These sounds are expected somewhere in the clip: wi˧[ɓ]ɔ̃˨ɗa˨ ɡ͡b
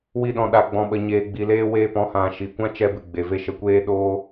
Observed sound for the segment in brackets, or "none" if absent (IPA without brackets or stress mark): ɗ